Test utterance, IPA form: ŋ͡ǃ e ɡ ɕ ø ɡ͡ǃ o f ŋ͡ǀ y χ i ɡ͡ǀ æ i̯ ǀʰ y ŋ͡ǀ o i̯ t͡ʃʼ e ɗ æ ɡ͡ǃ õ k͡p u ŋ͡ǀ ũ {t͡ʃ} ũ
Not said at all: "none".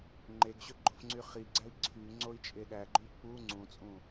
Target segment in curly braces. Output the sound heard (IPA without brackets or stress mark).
t͡sʼ